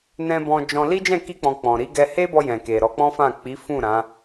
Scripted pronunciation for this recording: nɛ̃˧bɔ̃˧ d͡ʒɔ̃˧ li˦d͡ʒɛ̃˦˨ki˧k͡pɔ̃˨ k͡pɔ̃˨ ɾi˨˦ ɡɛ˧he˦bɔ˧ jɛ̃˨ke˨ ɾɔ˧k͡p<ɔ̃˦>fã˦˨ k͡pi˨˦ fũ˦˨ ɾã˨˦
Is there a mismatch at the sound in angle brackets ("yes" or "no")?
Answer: no